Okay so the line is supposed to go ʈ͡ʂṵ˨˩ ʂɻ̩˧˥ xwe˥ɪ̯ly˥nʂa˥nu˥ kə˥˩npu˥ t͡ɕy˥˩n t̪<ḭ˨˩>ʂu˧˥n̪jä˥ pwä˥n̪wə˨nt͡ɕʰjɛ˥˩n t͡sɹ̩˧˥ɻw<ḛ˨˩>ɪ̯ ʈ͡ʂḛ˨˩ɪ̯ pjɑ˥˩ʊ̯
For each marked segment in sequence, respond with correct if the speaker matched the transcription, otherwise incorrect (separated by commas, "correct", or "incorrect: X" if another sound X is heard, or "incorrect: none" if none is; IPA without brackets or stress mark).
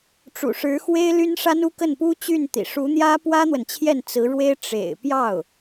correct, incorrect: e˥